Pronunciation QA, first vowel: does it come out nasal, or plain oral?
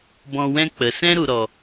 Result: nasal